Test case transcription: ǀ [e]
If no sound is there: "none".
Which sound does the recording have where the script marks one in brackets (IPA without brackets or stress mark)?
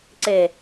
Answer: e